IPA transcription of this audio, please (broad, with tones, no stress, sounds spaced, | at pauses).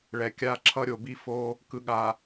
ɭ ɛ˨ kʲ a˦˨ ǁʰ ʌ˦ ɾʲ o˨ b i˦ f o˦ | k ɯ˨ ɠ a˨